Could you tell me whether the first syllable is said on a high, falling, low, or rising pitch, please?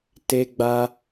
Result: high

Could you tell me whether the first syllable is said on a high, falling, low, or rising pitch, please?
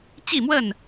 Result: falling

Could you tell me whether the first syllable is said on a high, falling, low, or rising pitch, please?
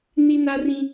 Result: high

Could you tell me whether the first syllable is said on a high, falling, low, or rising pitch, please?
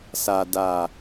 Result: low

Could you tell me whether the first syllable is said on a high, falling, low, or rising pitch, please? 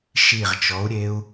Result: low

